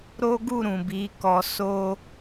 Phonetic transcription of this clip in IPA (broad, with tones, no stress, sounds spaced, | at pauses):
ɾ o˦ ɡ u˦˨ ɾ ũ˨ b i˨˦ k ɔ˧ s o˦